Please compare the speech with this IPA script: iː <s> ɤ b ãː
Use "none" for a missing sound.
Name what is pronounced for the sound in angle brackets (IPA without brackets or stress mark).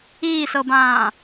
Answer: s